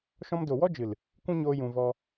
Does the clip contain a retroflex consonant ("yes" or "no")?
no